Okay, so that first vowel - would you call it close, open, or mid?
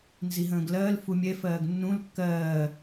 close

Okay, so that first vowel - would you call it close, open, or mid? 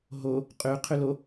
mid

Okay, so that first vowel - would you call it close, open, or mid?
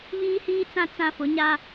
close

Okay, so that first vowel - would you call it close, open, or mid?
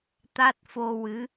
open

